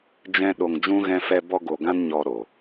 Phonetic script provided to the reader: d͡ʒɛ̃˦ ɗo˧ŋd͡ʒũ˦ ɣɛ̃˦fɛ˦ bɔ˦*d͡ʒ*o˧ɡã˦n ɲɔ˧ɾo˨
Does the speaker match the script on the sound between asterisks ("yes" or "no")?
no